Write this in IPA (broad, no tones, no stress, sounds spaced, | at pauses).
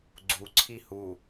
ɡ͡ǀ u ǀʰ i h u